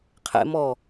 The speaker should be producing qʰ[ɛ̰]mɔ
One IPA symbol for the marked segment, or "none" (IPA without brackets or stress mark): ɛ̰